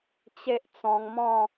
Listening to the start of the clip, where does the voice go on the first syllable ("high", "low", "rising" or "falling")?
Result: high